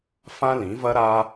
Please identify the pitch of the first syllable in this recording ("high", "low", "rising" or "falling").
high